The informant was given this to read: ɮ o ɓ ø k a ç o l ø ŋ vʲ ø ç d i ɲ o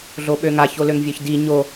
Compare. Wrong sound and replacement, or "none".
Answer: k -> ŋ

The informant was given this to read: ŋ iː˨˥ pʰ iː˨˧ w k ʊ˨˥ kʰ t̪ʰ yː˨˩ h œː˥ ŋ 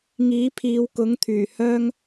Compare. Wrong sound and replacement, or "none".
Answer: kʰ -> ŋ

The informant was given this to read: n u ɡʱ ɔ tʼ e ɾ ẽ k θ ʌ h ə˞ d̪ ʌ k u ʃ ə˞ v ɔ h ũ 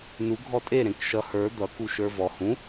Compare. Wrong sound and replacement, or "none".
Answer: θ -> ʃ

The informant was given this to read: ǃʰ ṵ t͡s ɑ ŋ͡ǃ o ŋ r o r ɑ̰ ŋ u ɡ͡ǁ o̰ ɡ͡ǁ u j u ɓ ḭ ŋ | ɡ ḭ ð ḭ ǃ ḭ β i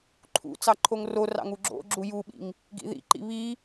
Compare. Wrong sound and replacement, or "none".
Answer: ŋ͡ǃ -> ǃʰ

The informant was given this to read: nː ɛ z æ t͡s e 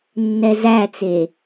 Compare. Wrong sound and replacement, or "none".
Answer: none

